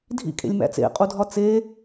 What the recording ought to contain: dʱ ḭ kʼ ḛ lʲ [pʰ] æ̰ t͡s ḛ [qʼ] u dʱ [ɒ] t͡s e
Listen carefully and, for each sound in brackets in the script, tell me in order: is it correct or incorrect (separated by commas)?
incorrect, correct, correct